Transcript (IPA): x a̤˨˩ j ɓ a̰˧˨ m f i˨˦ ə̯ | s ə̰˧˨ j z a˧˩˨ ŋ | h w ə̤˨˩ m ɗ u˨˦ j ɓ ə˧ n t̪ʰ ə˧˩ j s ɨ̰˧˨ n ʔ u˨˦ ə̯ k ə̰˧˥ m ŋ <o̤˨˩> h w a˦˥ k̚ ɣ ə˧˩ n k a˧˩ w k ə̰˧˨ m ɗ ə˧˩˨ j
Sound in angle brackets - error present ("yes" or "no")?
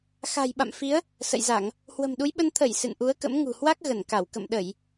yes